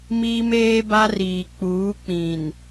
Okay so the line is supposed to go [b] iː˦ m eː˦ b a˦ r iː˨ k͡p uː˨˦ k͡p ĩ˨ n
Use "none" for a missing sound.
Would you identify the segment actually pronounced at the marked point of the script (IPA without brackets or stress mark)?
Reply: m